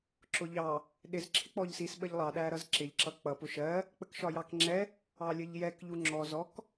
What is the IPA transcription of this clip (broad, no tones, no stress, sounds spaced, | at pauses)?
ǁ ʊ ʎ ɑ | ɗ ɪ z ǁʰ ɪ k͡p ɔ ʎ s i s ɓ ə ʎ lˠ ɑ ɗ æ ɾ ʌ z ǁ ɪ ʎ ǁ ʌ k͡p ʌ p ʊ ʃ ɜ | k͡p ə k ʃ ɒ j ɑ k ŋ͡ǁ ɛ | ɑ lʲ ə ʎ j ɛ k ʎ u ŋ͡ǁ ɔ z ɔ k